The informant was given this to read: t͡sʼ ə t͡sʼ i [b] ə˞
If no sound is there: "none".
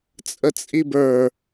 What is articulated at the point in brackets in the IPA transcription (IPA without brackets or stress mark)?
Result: b